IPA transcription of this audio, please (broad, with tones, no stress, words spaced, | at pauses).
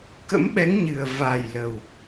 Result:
kə̰˧˥mɓɛ˨˦ŋɲɨ˨˩ə̯ va˨˩j lə˨˩w